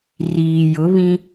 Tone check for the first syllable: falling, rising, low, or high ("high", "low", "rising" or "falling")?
low